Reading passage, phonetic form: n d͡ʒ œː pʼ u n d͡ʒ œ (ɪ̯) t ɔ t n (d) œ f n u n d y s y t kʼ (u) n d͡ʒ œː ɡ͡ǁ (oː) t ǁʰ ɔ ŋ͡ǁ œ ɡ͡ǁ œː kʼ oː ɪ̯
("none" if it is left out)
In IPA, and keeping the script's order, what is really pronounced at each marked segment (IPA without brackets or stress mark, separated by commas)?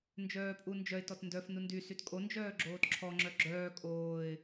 ɪ̯, d, o, oː